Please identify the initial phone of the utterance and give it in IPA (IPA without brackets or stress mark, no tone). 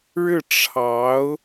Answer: ɻ